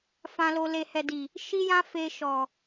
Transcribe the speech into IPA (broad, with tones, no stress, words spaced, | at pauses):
fã˨lo˨ le˨hɛ˨di˨ | ʃi˦jã˦ fe˧ʃɔ˨